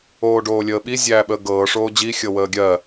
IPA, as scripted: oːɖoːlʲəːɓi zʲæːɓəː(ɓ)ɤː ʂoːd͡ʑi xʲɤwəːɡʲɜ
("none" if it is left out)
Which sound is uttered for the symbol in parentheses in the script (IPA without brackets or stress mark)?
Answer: ɡ